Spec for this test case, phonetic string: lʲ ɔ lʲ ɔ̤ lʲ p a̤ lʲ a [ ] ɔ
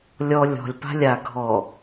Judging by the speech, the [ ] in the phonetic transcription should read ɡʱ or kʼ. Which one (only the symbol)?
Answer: ɡʱ